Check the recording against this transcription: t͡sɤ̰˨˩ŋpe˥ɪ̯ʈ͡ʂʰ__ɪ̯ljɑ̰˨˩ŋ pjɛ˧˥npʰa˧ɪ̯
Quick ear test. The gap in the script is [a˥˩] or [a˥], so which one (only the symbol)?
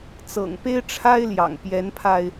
a˥